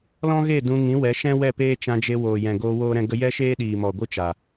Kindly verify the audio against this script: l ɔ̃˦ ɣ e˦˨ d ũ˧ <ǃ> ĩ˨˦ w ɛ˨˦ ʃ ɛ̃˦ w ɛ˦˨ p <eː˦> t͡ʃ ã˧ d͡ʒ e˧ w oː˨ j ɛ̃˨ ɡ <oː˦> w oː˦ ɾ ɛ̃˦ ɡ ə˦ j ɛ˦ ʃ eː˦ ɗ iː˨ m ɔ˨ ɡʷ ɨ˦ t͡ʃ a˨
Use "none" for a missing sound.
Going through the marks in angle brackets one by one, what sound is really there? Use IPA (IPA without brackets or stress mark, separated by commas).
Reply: ŋ, eː˦, oː˦